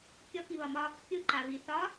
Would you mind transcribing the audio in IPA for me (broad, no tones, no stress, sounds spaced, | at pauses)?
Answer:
kʲ ɔ k i β ɒ m ɒ | kʲ ʊ ǃ a β i θ ɒ